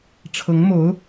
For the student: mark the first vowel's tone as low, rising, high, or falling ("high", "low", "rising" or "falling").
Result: rising